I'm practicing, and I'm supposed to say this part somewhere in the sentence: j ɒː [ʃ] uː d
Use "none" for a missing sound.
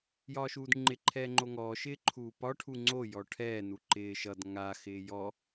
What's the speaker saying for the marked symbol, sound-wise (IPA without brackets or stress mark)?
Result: ʃ